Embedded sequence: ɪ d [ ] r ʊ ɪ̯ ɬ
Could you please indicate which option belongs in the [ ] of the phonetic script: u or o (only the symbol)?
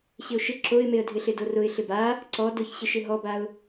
o